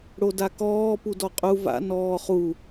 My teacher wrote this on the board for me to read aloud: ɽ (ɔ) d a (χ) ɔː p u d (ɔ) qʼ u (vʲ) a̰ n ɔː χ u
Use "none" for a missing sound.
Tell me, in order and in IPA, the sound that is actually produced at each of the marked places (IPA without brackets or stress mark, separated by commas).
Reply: o, k, ɔ, v